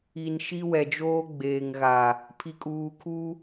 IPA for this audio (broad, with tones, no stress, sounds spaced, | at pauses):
i˨ n ʃ i˦ w ɛ˨ d͡ʒ oː˦ ɡ͡b eː˨ ŋ ɣ a˨ | pʰ i˨ kʼ uː˨ kʰ u˦